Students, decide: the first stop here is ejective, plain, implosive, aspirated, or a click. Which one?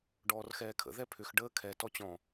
plain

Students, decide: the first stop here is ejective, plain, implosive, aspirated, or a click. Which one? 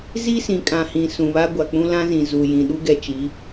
ejective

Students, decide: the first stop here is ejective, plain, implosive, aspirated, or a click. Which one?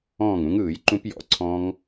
click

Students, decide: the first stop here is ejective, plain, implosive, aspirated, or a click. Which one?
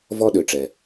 implosive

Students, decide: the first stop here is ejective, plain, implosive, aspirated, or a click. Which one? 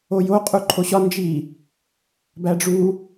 ejective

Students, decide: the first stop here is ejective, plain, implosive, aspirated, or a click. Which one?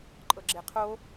click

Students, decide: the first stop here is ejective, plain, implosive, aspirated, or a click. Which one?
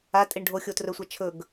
ejective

